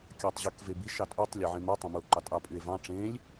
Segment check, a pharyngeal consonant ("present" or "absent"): present